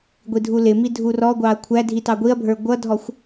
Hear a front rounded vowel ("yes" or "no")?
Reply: no